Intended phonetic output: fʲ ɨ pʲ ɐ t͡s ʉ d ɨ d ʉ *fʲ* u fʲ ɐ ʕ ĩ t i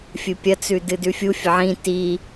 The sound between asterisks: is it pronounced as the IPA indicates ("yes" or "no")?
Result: yes